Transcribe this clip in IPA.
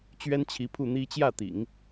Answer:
t͡ɕ ɥ ɛ˥ n t͡ɕʰ i˧˥ pʰ u˥˩ n̪ i˥ t͡ɕ j ä˥˩ t̪ ḭ˨˩˦ ŋ

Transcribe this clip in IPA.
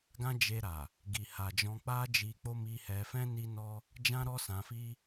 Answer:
ɡ ã˦ d͡ʒ e˧ ɾ a˨ | ɡ i˨ h a˨ d͡ʒ ɔ̃˧ k͡p a˦ d͡ʒ i˧ k͡p o˦ m i˧ h ɛ˧ f ɛ̃˦ n i˦ n ɔ˦ | d͡ʒ ã˦ ɾ ɔ˦ s ã˧ f i˦

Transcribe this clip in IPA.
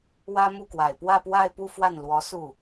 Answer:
w ä˥ m u˥˩ k w a˨˩ ɪ̯ p w ä˥˧ p w a˥˧ ɪ̯ p u˥˧ f w a˥˩ n l w ɔ˧˥ s u˥˩

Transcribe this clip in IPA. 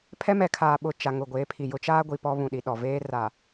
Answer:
pʰ ɛ˦ m ɛ˨ kʰ aː˨ ɓ ʊ˨ t͡ʃ a˨ ŋ ʊ˨ ɡʷ eː˨˦ pʰ i˨ j ʊ˦ t͡ʃ aː˦ ɡʷ i˨ p ɔ˦ β ũ˨ ɗ i˨ ɗ ɔ˨ v eː˦ r a˨

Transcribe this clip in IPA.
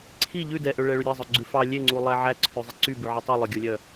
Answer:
ǀʰ i ʎ ʉ d ɛ ʔ ø ɭ ɛ ɭ y ɾʲ e zˤ œ ɡ͡ǀ ʉ f ɑ lʲ e ŋ͡ǀ u lˠ æ ʕ æ ǀʰ ʉ zˤ i ǀ y b ʉ ʕ i tˤ u lˠ œ ɡʲ o lʲ œ

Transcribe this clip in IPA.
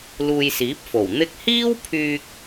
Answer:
l uː˧ j s iː˨˥ p̚ f o˨˩ w n̪ ɪ˧ k̚ h iː˥ w pʰ yː˧ k̚

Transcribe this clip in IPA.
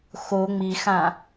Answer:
x o ŋ͡m i x ã

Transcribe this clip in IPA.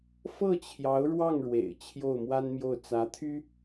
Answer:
f ɤ˥˩ t͡ɕʰ j ɑ˧˥ ʊ̯ ɻ w ɑ˥˩ ŋ ɻ w ḛ˨˩ ɪ̯ t͡ɕʰ j o˥˩ ʊ̯ m w a˥ n m j o˥˩ ʊ̯ t͡s ä˧˥ t̪ʰ y˥

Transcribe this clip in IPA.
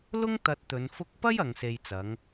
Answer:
l ʊ˥ ŋ t̪ ɐ˧ t̚ t̪ ɵ˨˧ n f ʊ˧ k̚ p ɐ˥ j ɐ˨˧ ŋ s e˧ j t͡s ɐ˨˥ ŋ

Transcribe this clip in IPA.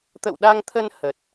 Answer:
t̪ ə̰˧˨ w ɗ a˧ ŋ t̪ʰ ə˧ n h ə˨˩ t̚

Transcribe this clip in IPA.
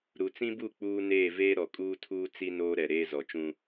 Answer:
ɾ u˨ t͡s ĩ˦ b u˦˨ k͡p uː˦ n eː˦˨ v eː˦ ɾ ɔ˨ kʼ uː˦ tʰ uː˦ t͡s i˦ n oː˦ ɾ ɛ˨ ɾ eː˦ z ɔ˨ t͡ʃ ũ˦

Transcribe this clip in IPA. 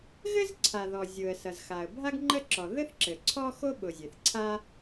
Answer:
ɣ ɘ˥ z ǀʰ a˩ ð ɔ˩ zʲ ʊ˩ ə̯ s ʌ˩ z x a˩ ə̯ bʱ a˥ ɡ ŋ͡ǃ ə˥ ǁ ɔ˩ ð ɘ˥ θ ǁ ɘ˩ ǀʰ ɔ˥ x o˥ ɓ ʊ˩ zʲ e˩ θ ǀʰ a˥

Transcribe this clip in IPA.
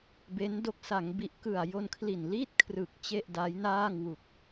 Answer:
b e˦˥ n d o˦˥ k̚ s a˩˦ ŋ b i˨˩ ʔ k ɯ˨˩ a̯ j o˧ n kʰ l i˨˩ n l iː˥˩ t̚ kʰ r ɯ˨˩ k̚ t͡ɕ e˥˩ ʔ d a˦˥ j n aː˥˩ ŋ w u˨˩ k̚

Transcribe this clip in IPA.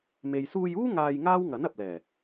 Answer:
m e˨ j s uː˧ j uː˥ ŋ aː˧ j ŋ aː˥ w ŋ ɐ˨˥ n ɐ˨ p̚ l ɛː˨˩

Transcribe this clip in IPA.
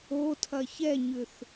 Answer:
o tʰ ɐ ç ɛ ɲ ʏ θ

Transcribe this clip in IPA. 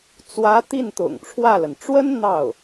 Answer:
t͡s w ä˧˥ t̪ i˥˩ n t̪ ʊ̰˨˩ ŋ ʈ͡ʂʰ w ä˥˩ l ə˩ n ʈ͡ʂ w ə˥ n n̪ ɑ˥˩ ʊ̯

